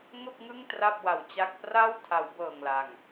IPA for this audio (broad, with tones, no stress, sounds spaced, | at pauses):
ŋ o˥˩ k̚ ŋ ɯ˥˩ ŋ t r a˥˩ p̚ w a˨˩ w t͡ɕ a˥˩ k̚ p r a˥˩ w tʰ a˩˦ w b ɤː˨˩ ŋ l a˨˩ ŋ